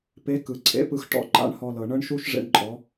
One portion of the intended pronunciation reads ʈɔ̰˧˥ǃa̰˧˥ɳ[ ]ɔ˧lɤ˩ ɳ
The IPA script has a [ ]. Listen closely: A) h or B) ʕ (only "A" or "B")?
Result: A